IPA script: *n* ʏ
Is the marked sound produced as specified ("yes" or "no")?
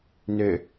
yes